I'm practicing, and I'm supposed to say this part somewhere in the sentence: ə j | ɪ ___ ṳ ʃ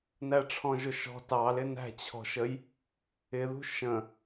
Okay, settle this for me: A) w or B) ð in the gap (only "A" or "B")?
B